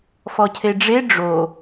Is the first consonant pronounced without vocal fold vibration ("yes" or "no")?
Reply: yes